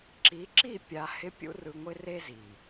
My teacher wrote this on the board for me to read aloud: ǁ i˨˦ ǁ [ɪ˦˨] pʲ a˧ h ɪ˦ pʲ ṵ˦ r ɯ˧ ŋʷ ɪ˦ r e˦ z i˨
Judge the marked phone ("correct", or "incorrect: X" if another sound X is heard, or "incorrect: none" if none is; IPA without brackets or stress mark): incorrect: i˦˨